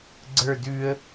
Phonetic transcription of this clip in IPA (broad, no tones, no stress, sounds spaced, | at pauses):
ɡ͡ǀ ə˞ d ʉ ə̯